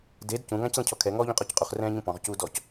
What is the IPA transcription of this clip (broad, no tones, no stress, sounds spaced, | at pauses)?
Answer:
d e d c ũ ŋ ã c l ə̃ cʰ ɔ kʰ ɛ ŋ ɔː ʎ ũ qʼ ɔ c qʼ u χ r ɛ̃ː ɲ ũ p ɔ̃ ʁ c uː d ɔ c